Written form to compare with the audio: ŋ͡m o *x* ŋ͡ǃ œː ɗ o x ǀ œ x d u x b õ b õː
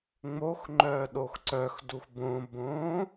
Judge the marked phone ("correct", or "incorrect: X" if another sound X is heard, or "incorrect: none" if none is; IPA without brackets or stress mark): correct